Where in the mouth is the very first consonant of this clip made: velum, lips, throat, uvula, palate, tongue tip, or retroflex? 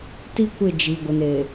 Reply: tongue tip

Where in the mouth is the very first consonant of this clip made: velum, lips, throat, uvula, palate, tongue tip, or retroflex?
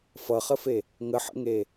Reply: lips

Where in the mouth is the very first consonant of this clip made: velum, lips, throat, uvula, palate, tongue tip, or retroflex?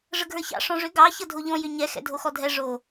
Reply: retroflex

